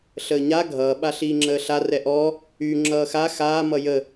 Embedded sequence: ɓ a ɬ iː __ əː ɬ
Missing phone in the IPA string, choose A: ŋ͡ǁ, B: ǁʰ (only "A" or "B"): A